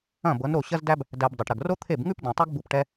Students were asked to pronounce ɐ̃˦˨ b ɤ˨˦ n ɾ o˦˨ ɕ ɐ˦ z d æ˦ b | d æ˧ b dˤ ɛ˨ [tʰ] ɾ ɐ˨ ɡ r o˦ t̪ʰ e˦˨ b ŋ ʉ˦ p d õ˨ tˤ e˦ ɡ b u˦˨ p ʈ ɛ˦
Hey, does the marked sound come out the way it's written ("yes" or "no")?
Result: no